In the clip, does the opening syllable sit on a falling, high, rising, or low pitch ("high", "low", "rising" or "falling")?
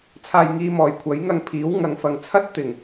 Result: low